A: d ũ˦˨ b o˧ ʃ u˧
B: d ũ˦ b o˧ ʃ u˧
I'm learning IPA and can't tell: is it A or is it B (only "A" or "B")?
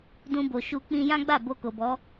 B